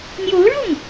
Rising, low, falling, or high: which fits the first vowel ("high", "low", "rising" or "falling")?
rising